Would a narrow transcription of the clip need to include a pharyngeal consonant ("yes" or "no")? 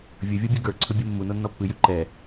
no